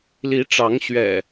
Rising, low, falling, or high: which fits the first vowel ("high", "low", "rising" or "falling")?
rising